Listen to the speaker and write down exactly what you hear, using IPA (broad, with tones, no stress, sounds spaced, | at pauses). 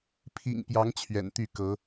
pʰ ḭ˨˩ ŋ p j ɑ˨˦ ŋ t͡ɕʰ ɥ ɛ̰˨˩ n t̪ y˥˨ k ɤ˨˦